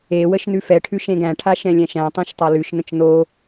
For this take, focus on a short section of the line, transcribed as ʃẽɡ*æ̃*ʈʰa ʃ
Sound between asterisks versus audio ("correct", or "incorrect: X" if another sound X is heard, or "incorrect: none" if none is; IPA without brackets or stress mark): correct